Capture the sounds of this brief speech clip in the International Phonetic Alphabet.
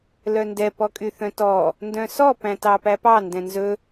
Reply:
l œ n d ɛ p ɔ kʼ y θ œ̃ t ɔ | n d œ̃ s ɔ p æ̃ t ɑ p æ p ɑ n d ɛ̃ n z ɵ

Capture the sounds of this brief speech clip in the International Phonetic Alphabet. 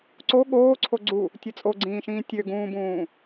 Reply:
ǀ o ɠ oː ǀʰ o ɡ͡ǀ u | tʲ ɯ t͡sʼ o ɡ͡ǀ ĩː ʃ ĩː tʲ ø ɡ ũː b ũː

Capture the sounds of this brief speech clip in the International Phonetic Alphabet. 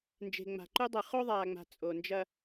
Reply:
n d͡ʒ e̤˨ ŋ͡m a̤˨ ǃ u˦ dˤ ɨ˨ χ o˦ ðˤ aː˨ ŋ͡m a̤˨ t͡sʼ o˨ n d͡ʒ ɐ˦

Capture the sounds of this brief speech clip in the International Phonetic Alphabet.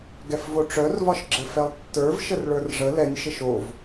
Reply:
ɡ ɛ f v o ʈ͡ʂ œ r v ɒ ʃ ɡ͡ǁ ɘ f ɛ lˠ tː ə˞ v ʃ ə r ɭ ə˞ r ʐ ə l ɛ nʲ ʃ ɘ ʃ o v

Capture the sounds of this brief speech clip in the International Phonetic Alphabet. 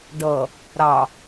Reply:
ɖ ʌ | ɾ ɑ

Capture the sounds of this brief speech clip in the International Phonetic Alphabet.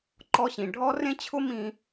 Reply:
ǃ ɔ˧ ɕ ĩ˩ ɖʱ ɔ˥ r ẽ˥ t͡ɕʰ ʊ˥ m ĩ˧

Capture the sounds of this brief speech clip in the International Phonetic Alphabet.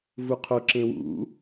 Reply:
v u qʰ o ǁ ẽ w ṵ

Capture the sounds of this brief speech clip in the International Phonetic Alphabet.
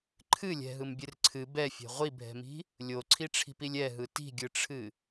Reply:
ǃʰ ɨ lʲ ɛ̤ ɦ ɯ m bʲ ɨ r ǀʰ ɨ b ɛ fʲ ɛ̤ ʁʷ i bʱ ɛ̤ m i̤ | lʲ o ǀʰ i ʈ͡ʂʰ i̤ p i lʲ ɛ ɦ ɯ t i̤ ɡʲ ɯ ʈ͡ʂʰ ɨ

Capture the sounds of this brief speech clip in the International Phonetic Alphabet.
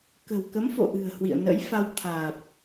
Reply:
k ə̤˨˩ w k ə˨˦ m f o̰˧˨ ʔ ɨ̤˨˩ ə̯ h w ḭ˧˨ ə̯ n ə̰˧˥ j f a˧ w t̪ʰ aː˨˩ p̚

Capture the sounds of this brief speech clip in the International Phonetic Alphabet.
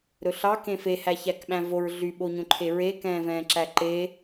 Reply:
ɾ ɵ ɬ ɑ k ẽ f e h æ ç æ k ɓ æ̃ v o ɹ ɮ y ɓ o ɲ õ ǃʰ e ɹ e k ɛ̃ː v ɛ̃ː ǁ æ ǃ e

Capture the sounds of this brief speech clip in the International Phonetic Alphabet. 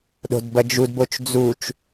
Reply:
ɗ o̤ d b ɐ d͡ʒ u d b o t͡ʃ d͡z u t͡ʃ

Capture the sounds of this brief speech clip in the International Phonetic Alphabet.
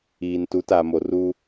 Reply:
iː˨ n t u˨˦ t a˨ m o˨ r u˦

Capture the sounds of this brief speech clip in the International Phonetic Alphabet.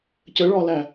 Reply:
c ə ɭ ɒ l æ

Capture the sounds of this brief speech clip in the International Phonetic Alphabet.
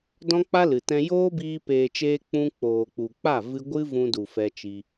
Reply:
d ɔ̃˦ k͡p a˦ l ɨ˨ t ɛ̃˧ j oː˦ b iː˧ p eː˨ t͡ʃ eː˧ k͡p ũ˦ k͡p oː˨ k͡p u˨ k͡p a˦˨ v ɨ˧ ɡʷ ɨ˦ v ũ˧ d u˨ f ɛ˧ t͡ʃ i˧

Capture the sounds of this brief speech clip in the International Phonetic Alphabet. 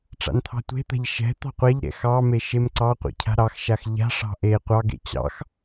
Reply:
ʈ͡ʂ a̰ n t̪ʰ ɑ̤ tʷ e̤ t̪ a̤ ʎ ʃ ɛ̤ t̪ ɑ̤ qʷ a ʎ ɾ ɛ̰ x ɑ m e ʃ e m ǀ ɑ qʷ ɛ̰ cʰ a̤ ɾ ɑ x ʃ a x ʎ a̤ ʂ ɑ̤ ʔ e qʷ ɑ ɡ ḛ t͡ɕ ɑ̰ x

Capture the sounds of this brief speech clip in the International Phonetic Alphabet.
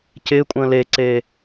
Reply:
c ɪː kʷʼ ə̃ː l e ǀ eː

